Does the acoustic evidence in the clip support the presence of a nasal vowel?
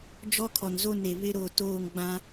yes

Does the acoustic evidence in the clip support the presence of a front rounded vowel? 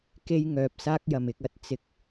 yes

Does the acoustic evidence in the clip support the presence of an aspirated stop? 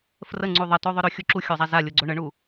no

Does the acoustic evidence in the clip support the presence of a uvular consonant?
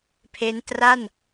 no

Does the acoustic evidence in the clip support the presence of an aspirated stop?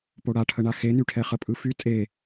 yes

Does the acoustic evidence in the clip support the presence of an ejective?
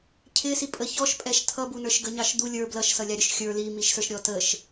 yes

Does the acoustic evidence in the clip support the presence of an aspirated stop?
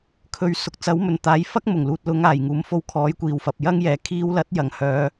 yes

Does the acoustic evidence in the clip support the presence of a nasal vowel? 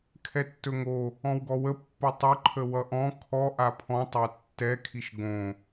yes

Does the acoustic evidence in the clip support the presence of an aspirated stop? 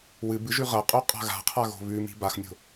yes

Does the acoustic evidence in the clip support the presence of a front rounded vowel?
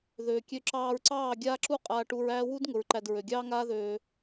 yes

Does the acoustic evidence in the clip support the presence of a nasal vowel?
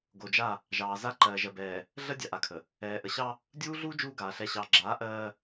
no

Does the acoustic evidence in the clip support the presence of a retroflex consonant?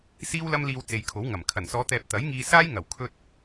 no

